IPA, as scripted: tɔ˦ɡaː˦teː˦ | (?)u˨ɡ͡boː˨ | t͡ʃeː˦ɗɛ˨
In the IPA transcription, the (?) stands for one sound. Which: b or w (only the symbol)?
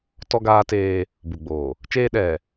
b